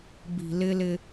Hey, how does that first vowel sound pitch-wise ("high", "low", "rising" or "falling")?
low